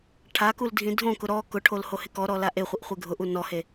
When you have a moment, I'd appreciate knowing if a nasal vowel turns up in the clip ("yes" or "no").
yes